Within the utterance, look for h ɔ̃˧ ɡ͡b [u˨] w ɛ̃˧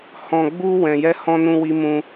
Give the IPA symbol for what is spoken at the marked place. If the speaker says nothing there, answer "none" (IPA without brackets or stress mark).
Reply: u˦